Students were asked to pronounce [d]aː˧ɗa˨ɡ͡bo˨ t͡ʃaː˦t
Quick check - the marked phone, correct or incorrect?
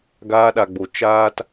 incorrect